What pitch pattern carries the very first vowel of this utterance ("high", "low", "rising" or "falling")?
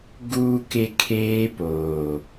low